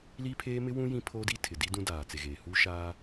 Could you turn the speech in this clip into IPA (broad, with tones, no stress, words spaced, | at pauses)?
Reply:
li˦pʰeː˦mɪ˦wũ˦ jĩ˦pʰoː˦di˦ tʰɪ˨di˦ dũ˦daː˨t͡se˨ɣeː˨ hu˦ʃaː˦